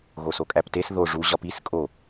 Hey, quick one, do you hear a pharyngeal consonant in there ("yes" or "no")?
no